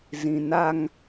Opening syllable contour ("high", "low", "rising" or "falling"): low